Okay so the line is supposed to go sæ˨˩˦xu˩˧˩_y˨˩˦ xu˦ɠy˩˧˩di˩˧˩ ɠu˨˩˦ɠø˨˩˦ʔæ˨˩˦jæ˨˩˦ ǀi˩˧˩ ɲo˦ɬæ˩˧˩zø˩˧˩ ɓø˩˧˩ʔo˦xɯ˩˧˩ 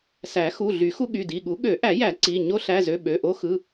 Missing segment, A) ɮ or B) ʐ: A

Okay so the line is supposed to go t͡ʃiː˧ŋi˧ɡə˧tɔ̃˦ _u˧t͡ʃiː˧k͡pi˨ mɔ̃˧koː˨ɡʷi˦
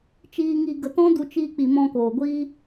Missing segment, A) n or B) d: B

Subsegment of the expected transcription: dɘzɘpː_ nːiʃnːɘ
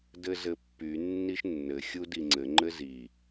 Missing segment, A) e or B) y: B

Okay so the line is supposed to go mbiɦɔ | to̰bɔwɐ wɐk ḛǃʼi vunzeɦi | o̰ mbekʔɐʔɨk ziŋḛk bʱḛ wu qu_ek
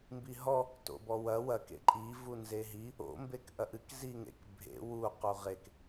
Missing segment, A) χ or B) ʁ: B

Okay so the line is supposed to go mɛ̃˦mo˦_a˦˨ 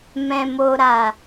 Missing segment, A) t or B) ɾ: B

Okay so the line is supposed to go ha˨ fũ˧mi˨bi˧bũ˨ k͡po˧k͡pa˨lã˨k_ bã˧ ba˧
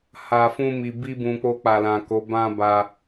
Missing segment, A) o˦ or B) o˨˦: B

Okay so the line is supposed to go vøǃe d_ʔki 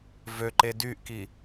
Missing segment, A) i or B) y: B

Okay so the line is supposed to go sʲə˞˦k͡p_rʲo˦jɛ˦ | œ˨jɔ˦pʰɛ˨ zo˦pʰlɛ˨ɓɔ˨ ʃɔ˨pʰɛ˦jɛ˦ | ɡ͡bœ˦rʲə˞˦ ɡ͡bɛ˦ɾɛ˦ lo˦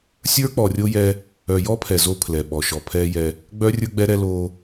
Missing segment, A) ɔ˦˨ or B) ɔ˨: B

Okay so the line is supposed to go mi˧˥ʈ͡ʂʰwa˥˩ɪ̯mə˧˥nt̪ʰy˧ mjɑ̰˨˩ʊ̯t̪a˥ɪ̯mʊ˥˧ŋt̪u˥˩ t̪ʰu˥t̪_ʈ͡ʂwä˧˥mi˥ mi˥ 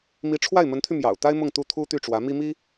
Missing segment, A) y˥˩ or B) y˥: A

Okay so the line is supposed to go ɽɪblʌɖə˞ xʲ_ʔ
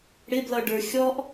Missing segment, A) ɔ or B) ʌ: A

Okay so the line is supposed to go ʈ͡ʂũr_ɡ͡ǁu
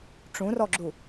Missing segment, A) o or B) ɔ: B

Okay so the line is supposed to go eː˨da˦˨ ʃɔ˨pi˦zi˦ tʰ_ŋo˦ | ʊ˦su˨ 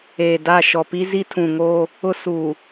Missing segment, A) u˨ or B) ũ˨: B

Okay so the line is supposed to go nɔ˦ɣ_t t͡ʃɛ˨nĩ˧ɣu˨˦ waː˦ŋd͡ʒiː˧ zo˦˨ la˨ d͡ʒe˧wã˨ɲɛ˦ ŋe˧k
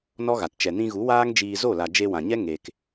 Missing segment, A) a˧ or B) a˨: B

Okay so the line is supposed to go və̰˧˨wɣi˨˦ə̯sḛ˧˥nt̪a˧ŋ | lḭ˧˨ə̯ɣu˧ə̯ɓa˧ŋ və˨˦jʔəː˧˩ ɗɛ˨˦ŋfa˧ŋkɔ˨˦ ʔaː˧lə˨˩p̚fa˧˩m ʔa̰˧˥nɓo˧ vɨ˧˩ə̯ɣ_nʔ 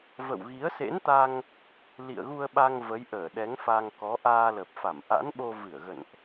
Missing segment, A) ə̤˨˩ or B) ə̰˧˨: B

